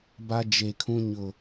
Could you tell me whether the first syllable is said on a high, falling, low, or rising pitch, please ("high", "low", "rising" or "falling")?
high